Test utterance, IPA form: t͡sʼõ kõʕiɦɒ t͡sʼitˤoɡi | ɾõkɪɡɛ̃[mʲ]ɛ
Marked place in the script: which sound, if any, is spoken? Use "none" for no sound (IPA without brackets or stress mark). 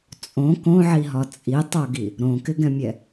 mʲ